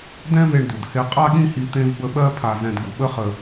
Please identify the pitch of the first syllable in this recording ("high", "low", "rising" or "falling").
high